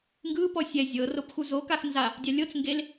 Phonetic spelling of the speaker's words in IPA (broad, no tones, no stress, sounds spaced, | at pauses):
ŋ ɡ ɯ p ɔ sʲ ɛ zʲ ɤ r o p x u z o k a x n z a | dʲ a lʲ ɤ t͡s ŋ ɡ e l